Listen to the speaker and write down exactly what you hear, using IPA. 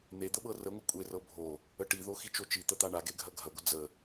n̪ e d̪ ə ɓ ɤ r ə ŋʷ ɐ kʷʼ e r ɤ bʱ o | ə ʈ i ð o x i t͡ʃ o t͡ʃ i t̪ ə t̪ a ɳ a ɡ e ɡʱ ɐ ɡʱ ɐ ɡʷ ə d͡z ə

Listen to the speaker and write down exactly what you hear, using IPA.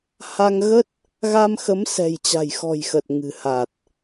h a˧ ŋ ɣ ə˦˥ t̚ | ɣ a˧ m x ə˨˦ m s ɛ̤˨˩ j t͡ɕ a̤˨˩ j x ɔ̤˨˩ j x ə˨˩ t̚ ŋ ɨ̤˨˩ h a˨˩ t̚

